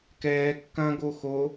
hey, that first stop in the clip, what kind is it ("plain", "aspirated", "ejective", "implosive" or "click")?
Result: plain